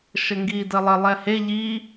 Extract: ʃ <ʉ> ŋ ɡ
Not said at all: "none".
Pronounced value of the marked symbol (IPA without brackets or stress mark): ə